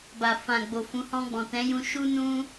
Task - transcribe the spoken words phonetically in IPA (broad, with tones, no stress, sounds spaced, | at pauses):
b a˨ f ã˨ ɡ͡b o˨ f ũ˨˦ h ɔ̃˧ ɡ͡b ɔ̃˨ t ɛ̃˨˦ j ũ˧ ʃ u˦ n ũ˦